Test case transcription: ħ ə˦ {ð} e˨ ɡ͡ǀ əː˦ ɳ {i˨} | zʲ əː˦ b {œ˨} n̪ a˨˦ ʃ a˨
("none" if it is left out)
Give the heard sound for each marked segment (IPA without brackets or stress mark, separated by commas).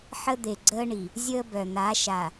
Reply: d̪, i˨, œ˨